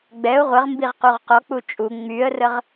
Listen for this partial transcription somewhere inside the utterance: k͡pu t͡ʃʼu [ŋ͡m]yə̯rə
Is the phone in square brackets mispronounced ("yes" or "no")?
no